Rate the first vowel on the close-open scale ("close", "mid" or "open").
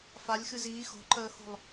open